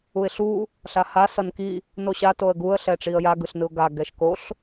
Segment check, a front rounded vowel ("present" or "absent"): absent